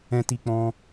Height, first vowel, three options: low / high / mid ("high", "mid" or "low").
mid